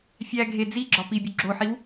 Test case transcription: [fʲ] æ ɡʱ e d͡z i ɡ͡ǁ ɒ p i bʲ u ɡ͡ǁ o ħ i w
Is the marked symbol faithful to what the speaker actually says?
yes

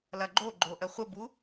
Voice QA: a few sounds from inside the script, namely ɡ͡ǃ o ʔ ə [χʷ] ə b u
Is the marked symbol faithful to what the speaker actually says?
yes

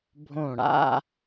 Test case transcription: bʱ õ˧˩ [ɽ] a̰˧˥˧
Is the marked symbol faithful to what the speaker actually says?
yes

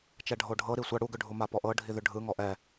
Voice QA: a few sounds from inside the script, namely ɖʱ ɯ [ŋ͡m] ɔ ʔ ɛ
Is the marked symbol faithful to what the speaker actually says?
no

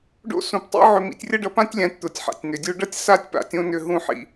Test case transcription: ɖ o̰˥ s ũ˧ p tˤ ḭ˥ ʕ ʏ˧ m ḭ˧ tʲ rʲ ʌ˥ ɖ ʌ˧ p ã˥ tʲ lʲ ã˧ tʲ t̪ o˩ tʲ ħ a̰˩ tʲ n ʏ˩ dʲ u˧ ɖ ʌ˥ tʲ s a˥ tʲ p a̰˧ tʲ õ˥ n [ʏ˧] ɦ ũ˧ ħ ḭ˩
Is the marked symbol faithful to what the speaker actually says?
yes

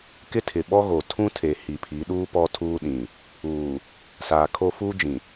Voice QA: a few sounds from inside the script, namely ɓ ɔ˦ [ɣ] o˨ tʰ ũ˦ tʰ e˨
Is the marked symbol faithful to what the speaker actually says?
yes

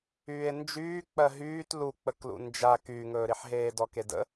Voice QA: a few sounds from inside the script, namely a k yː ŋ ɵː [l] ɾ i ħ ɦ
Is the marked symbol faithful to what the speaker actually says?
no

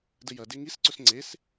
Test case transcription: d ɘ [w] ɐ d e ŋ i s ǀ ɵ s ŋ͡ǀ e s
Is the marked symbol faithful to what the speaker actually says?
no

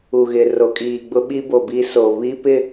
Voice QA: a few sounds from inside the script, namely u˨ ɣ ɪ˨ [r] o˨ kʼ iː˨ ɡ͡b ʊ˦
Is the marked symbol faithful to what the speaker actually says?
yes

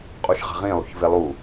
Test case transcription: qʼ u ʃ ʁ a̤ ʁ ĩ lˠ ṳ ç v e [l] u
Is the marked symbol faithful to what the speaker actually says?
no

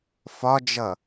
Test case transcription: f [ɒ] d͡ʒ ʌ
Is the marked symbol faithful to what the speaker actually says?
yes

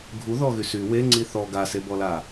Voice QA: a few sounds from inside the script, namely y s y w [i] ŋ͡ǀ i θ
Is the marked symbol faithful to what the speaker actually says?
no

